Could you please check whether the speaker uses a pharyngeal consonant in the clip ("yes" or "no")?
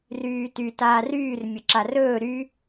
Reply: no